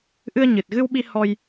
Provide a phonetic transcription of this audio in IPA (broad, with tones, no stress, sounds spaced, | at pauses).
ʔ ɨ˧ ə̯ ɲ ɨ˨˩ t̚ ɣ ɨ˧ w ɓ i˧ h ɔ˧ j